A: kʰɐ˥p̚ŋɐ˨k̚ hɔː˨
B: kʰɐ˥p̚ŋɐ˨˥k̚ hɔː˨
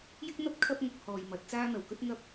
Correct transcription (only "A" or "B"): B